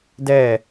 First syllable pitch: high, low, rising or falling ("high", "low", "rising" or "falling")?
falling